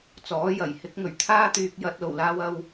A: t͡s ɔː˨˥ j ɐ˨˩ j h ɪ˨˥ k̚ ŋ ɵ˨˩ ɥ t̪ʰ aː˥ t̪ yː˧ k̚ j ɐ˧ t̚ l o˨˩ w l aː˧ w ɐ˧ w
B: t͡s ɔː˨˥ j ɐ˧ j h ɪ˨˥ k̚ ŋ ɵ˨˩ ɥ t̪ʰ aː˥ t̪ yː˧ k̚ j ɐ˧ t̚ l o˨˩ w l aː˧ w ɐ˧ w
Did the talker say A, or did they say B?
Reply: A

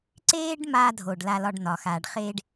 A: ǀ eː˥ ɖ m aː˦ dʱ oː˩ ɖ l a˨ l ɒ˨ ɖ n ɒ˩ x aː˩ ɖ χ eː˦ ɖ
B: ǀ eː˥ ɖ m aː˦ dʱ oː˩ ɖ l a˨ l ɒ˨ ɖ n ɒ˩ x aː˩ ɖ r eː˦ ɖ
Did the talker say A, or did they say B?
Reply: A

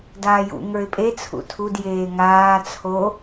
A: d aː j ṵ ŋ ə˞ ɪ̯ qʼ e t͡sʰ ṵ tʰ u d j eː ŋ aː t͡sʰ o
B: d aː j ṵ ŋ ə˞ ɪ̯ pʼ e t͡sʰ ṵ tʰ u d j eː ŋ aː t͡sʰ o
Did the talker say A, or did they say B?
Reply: B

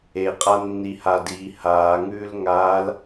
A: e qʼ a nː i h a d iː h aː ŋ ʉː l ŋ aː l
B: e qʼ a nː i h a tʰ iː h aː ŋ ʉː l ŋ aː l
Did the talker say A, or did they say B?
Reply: A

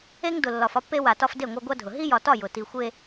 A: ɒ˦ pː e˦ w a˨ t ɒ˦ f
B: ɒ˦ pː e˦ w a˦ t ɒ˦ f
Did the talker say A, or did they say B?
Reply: A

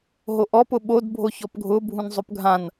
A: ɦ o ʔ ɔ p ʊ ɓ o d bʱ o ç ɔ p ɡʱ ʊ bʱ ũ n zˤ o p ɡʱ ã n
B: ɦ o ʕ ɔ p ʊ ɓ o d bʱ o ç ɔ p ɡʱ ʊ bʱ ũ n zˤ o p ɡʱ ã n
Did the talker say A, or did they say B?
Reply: A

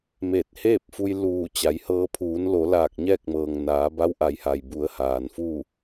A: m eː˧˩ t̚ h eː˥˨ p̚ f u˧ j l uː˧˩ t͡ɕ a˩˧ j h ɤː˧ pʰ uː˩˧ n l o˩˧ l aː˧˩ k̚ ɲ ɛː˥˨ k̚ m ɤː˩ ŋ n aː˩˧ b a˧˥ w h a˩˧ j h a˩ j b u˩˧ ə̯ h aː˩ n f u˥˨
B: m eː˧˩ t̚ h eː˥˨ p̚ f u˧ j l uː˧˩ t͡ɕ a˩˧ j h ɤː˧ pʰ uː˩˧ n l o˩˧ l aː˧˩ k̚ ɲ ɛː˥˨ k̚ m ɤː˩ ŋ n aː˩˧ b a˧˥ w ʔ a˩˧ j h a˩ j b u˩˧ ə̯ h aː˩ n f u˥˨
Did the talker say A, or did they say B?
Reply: B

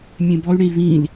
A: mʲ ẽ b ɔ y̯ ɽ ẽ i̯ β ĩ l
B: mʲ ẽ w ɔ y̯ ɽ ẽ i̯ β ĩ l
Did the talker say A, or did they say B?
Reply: A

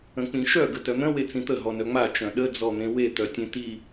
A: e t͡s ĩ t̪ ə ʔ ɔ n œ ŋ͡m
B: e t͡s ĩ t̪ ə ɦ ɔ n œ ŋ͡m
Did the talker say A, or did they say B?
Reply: B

